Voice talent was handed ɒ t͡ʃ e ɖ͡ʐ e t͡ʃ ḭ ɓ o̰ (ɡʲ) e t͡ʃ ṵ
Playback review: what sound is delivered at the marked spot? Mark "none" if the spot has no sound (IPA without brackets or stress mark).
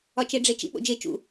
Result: d͡ʒ